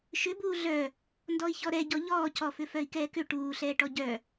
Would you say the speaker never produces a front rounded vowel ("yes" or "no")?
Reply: no